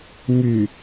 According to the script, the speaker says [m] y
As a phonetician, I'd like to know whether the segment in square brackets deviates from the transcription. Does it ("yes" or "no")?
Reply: no